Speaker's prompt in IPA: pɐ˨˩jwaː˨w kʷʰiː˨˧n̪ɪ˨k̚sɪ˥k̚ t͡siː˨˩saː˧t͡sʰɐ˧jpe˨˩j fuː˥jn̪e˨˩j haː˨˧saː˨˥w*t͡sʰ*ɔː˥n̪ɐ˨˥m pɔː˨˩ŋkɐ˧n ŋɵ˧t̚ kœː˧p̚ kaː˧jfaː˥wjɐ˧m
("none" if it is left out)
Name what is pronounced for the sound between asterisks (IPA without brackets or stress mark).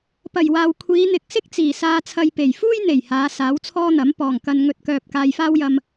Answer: t͡sʰ